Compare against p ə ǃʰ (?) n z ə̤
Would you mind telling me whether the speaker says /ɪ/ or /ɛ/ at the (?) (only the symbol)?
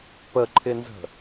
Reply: ɪ